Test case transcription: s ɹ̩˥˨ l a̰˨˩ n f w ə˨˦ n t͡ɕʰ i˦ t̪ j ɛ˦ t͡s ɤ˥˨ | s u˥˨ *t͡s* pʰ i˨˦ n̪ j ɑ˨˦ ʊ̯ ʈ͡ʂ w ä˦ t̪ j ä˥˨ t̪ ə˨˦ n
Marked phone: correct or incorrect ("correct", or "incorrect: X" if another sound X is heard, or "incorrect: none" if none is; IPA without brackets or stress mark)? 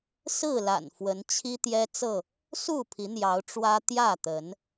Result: incorrect: none